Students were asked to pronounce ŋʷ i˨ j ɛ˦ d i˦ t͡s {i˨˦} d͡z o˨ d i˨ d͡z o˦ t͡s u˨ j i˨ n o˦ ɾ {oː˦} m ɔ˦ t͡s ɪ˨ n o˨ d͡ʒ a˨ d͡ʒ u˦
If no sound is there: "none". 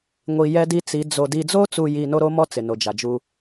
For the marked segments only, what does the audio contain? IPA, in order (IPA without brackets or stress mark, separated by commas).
i˨˦, o˦